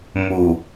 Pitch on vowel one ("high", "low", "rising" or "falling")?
low